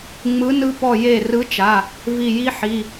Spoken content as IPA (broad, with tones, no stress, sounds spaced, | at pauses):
ŋ͡m ɯ˨˥ n ɯ˦ p ɔ˧˩ j e˧˩ r ɯ˨˥ t͡ʃ a˩˧˩ | v i˧˩ j i˦ ħ i˩˧˩